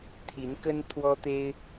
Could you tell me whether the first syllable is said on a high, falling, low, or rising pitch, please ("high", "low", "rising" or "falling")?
rising